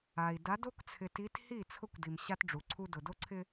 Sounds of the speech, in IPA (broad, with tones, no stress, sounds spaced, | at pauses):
a˨ i̯ d a˨˦ d o˦ k t͡sʰ ɪ˨ t i˨˦ t h i˦˨ t͡sʰ ʊ˦ kʷ d i˨ m ɕ a˦ t ɖ͡ʐ u˨ ǀʰ u˦ d ʊ˨ d o˦ ǀʰ ɪ˦